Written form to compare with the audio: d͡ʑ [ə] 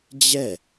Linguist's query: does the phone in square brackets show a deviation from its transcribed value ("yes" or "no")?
yes